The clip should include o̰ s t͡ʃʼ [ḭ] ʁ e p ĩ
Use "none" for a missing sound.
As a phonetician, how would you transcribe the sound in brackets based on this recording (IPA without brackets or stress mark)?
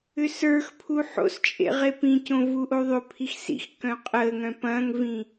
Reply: ḛ